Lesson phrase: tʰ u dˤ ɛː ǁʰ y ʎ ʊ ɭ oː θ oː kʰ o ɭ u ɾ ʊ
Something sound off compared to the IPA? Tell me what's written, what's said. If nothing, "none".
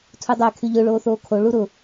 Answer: ǁʰ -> kʰ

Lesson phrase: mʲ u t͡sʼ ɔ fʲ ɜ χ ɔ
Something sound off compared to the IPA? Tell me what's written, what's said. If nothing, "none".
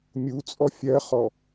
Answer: none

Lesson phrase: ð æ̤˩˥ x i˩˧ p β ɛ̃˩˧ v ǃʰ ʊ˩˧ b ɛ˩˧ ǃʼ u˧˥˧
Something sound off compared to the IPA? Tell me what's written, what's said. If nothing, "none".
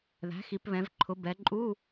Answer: none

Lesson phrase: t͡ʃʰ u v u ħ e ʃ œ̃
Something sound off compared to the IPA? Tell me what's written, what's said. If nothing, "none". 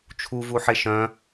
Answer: none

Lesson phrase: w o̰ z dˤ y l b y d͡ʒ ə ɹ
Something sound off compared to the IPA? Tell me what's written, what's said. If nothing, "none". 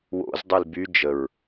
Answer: none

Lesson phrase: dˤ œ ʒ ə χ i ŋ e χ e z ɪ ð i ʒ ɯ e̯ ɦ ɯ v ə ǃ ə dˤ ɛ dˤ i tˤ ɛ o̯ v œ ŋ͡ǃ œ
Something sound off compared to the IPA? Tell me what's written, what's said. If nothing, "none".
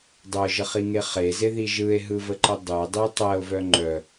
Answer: none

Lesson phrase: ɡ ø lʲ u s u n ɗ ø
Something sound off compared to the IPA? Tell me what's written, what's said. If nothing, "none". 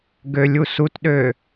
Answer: n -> t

